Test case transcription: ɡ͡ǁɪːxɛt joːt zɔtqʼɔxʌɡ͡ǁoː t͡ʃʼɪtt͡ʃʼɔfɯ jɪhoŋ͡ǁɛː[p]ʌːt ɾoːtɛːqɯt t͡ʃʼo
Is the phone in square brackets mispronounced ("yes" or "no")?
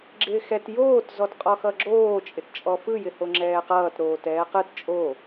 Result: yes